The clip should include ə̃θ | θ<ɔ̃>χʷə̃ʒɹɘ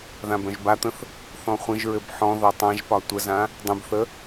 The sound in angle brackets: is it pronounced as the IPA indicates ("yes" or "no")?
yes